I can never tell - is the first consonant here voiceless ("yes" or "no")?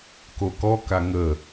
yes